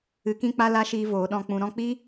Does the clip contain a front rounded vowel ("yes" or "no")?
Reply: no